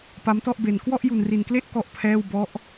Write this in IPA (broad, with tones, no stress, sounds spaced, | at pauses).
p a˦˥ m t ɔ˥˩ ʔ b e˧ n k w ɔ˥˩ ʔ j u˧ n r i˧ n k l e˥˩ ʔ k ɔ˥˩ ʔ pʰ ɛː˥˩ w b ɔ˦˥ ʔ